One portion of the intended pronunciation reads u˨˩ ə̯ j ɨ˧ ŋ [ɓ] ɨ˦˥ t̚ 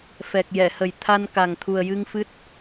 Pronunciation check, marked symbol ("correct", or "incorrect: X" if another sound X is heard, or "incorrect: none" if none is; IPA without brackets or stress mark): incorrect: f